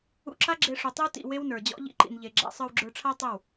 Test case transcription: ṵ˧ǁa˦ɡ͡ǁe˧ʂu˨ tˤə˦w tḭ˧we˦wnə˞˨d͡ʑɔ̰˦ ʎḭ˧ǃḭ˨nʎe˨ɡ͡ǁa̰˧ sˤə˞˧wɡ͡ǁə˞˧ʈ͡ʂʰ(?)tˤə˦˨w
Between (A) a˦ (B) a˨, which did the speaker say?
A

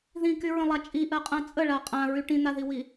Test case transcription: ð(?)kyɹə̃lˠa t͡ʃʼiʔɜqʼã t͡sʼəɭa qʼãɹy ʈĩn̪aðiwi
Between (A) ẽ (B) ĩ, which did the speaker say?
B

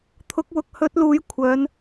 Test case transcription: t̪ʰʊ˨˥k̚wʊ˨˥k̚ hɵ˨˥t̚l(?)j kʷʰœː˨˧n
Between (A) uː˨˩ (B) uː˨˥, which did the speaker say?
B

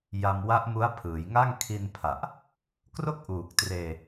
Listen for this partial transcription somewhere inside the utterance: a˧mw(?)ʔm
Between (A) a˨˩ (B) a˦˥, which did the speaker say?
B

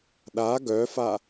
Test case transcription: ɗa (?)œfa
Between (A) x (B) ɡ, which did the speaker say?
B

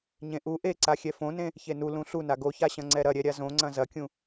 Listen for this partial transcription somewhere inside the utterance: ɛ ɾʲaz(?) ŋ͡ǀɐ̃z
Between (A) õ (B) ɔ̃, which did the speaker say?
A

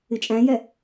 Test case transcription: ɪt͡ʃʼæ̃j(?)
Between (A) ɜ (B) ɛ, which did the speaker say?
B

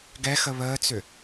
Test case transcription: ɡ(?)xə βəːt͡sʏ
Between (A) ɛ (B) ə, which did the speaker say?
A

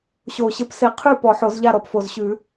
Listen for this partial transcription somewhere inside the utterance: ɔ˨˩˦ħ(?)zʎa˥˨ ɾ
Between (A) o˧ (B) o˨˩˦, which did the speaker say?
B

